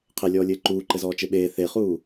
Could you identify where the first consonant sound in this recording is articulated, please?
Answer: uvular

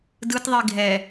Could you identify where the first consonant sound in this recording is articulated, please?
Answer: alveolar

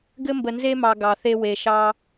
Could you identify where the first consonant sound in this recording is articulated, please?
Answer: velar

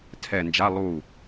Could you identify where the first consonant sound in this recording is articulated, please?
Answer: alveolar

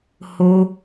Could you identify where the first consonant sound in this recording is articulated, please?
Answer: glottal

